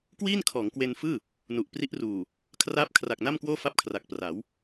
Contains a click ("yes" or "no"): no